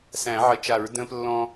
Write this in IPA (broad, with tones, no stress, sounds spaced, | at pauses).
s æ̃˨˩˦ ʕ ə˨˩˦ t͡ʃ a˨˩˦ ɹ d ə̃ː˦ p lː ɔ̃˦